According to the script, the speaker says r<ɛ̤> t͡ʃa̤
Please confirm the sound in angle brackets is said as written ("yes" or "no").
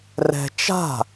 yes